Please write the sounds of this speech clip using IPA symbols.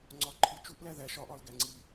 ŋ͡ǀɒǃʰi t͡ʃuʔlæ ðæ ʃɒʔɒl ɡæŋ͡ǀi

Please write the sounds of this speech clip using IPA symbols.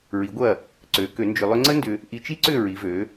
ɹi˩˥ɡʷɐ˥˩ | ǀø˩˥ kø˩˥nd͡ʒʏ˧lˠʏ˥ ŋ͡ǀə˥ndʏ˧ | ʔi˧t͡ʃi˥ǀʏ˥˩ ɹi˩˥vø˩˥

